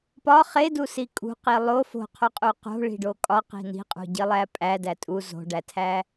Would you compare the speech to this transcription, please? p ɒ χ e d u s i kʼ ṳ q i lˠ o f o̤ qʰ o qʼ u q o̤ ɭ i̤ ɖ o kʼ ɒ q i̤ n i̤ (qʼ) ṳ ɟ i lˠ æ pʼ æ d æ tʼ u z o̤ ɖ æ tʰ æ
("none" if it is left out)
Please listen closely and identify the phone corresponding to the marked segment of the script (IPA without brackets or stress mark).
qʼ